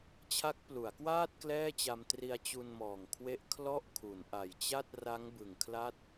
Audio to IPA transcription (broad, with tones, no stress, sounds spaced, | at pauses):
t͡ɕʰ a˦˥ k̚ p l u˩˦ a̯ k w aː˥˩ t̚ k l ɛː˥˩ t͡ɕ a˧ m t r i˧ a̯ t͡ɕ u˧ n m ɔː˨˩ ŋ kʰ w e˦˥ ʔ kʰ l ɔ˥˩ ʔ kʰ u˩˦ n ʔ a˨˩ j t͡ɕ a˥˩ t̚ r a˦˥ ŋ b ɯ˨˩ ŋ kʰ l a˦˥ t̚